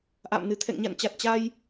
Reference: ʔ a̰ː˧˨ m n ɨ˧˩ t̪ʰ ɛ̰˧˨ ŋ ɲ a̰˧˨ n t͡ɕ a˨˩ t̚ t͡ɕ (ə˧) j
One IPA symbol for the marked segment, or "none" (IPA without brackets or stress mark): a˧